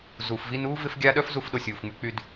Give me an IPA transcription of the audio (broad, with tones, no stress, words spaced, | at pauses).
zuː˩fvi˦nuː˥ vɪ˥fɡʲa˥ ɗœ˥fzu˦fɗo˨ sʲuː˩fŋ͡my˦k͡py˦d